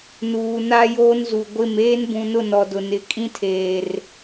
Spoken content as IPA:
n uː˨ n a˦ j oː˦ n z u˨ ɡʷ ɪ˦˨ m eː˦ n b ũ˨ n ʊ˦˨ n ɔ˨ d ʊ˨ n ɪ˨˦ kʼ ĩ˦ tʰ eː˨ r

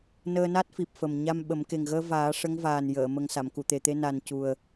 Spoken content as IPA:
n əː˧ n a˦˥ t̚ f i˨˩ p̚ f ə˨˩ m ɲ a˧ m ɓ ə˨˩˦ m k e˨˩ ŋ ɣ əː˧ v aː˨˩˦ ʂ ə˧˥ ŋ v aː˨˩ n j əː˨˩˨ m ə˨˩ ŋ s a˨˩˨ m k u˨˩˨ t̪ e˨˩ t̪ e˧ n a˨˩ n c u˨˩ ə̯

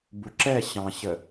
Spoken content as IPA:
b u ǁ ɛ ɕ ɑ̃ ɕ ə

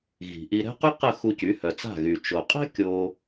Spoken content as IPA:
ɣ i̤˩ ʔ i˧ ɾ ɛ̤˥ q y˥ q ə˥˩ x u˧ c y˩˥ h œ˩ t͡s a̤˥˩ ɣ y˩ t͡ʃ o˩ qʼ ɛ̤˥ kʲ o˧

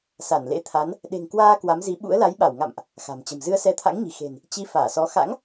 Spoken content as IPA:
s a˧˩ n l ḛ˧˥ t̪ʰ a˨˦ n | ɗ e̤˨˩ ŋ k w aː˧ k w a˨˦ m z i˨˦ ɓ ṵ˧˥ ə̯ l a˨˦ j ɓ a˧˩ w ŋ a̰˧˨ m ʔ | x a̤˨˩ m t͡ɕ ə̤˨˩ m z ɨ˧ ə̯ s ɛ˧ t̪ʰ a̰˧˥ ŋ ɲ i̤˨˩ x e̤˨˩ n | t͡ɕ i˨˦ f aː˧˩ s ɔ˨˦ x a̰˧˥ ŋ

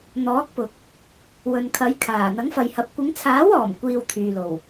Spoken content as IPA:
n̪ ɔː˨˥ k̚ p ʊ˨ k̚ | w ɵ˨ n kʰ ɐ˨˥ j kʰ aː˨˩ n̪ ɐ˨˥ ŋ f ɐ˨ j h ɐ˨˥ p̚ kʷ ɪ˨˧ ŋ t͡sʰ aː˨˥ w ɔː˨˩ m kʷ iː˧ w t̪ʰ yː˨ l o˨˩ w

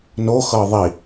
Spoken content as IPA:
n o x ɤ ðˤ i

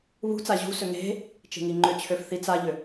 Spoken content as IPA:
β ṳ t͡s a ʑ ṳ s ø ŋ e̤ | t͡ʃ e̤ ŋ i ŋ͡ǃ ʏ t͡ɕʰ ø f θ i t͡s a ʎ ʏ

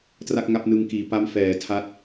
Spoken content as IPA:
t r a˥˩ k̚ ŋ a˥˩ p̚ n ɯ˧ ŋ k iː˩˦ p a˦˥ m f ɛː˩˦ tʰ a˦˥ t̚

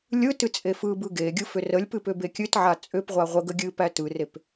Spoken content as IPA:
lʲ ɯ t ɨ t͡sʼ e f ɯ b ɯ ɡ e ɡʲ ɯ f ʏ r ə lʲ p ɨ p ʏ b e kʲ ɨ t ʕ a t͡sʼ ʏ p ʁʷ a ʁʷ ə ɡ ə ɡʲ ɨ p æ t ɯ r e p

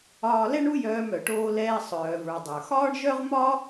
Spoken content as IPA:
ɒː˧ l ɛ˥ ɳ u˥ j œː˧ m œ˩ ʈ oː˧ l ɛː˧ sˤ œː˩ v ə˞˩ dˤ ə˞˩ x ɒː˥ ɳ ʒ œ˥ ʁ m ɒ˥

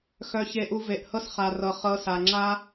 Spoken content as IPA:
x œ˧ ç e˧ ʔ u˧ v e˨ ʔ h ɤ˦ s χ a˨ r ɤ˨ χ ɤ˧ s a˨ ŋ͡ǁ a˦

